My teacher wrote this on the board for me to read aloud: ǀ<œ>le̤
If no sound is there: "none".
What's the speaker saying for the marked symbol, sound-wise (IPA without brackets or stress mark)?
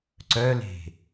œ